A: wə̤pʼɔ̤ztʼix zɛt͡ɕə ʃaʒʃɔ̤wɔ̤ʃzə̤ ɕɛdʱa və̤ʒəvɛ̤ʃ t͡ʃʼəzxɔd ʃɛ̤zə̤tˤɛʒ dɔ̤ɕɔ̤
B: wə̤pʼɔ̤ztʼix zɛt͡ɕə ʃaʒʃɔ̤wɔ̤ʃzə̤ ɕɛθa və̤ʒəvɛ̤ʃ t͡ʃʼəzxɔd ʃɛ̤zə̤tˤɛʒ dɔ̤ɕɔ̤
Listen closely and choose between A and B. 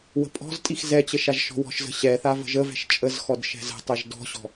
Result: B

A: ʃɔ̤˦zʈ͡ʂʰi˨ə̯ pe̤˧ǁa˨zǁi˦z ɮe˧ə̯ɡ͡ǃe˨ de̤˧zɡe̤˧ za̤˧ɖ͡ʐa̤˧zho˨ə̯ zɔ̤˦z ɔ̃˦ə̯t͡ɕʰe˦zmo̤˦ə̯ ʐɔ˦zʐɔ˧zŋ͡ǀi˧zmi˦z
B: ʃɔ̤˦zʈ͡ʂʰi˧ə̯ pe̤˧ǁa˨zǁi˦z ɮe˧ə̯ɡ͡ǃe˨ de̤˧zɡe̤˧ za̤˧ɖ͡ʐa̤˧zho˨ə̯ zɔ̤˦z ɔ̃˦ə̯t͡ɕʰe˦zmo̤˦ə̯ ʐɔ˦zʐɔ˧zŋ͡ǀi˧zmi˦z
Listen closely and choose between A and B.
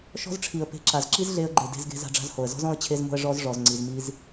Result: A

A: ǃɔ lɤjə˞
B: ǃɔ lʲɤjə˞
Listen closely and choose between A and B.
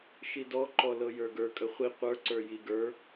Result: A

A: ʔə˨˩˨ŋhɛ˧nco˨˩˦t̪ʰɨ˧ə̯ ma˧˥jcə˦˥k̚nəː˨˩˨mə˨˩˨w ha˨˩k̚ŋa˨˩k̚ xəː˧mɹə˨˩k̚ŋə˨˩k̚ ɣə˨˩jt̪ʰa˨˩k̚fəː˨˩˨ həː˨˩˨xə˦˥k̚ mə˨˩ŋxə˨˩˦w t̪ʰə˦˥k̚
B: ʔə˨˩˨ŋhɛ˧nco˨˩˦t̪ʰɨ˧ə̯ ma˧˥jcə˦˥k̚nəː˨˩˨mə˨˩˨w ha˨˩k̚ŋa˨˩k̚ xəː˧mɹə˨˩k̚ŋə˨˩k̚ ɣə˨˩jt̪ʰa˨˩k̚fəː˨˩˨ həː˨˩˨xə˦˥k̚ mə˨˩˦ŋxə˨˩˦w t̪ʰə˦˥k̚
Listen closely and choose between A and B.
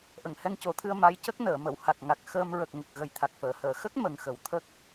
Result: A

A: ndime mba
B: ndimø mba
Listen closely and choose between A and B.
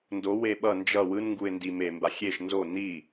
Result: A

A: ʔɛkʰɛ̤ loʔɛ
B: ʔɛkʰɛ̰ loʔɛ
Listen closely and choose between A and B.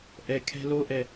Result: A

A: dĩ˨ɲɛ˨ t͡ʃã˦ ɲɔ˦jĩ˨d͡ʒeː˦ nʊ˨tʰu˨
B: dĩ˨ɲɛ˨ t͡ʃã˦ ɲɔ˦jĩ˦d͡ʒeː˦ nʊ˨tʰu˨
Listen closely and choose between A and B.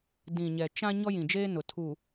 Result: A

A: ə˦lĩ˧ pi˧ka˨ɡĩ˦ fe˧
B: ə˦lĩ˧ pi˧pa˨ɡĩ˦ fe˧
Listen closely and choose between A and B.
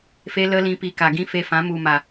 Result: A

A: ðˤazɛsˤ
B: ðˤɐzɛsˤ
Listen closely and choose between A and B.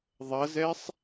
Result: B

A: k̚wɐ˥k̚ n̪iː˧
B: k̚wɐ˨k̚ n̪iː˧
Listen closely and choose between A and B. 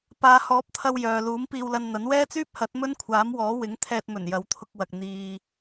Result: B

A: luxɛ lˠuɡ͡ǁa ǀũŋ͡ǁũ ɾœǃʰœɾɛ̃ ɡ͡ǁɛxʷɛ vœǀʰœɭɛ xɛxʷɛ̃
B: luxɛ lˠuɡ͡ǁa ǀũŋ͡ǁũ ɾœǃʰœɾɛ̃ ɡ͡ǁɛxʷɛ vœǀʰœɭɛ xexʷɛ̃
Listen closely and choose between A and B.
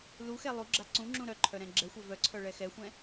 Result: A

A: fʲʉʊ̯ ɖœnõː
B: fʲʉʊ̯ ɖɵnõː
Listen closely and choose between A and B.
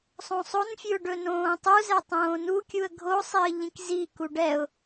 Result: B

